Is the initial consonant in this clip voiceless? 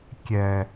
yes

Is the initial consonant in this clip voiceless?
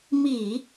no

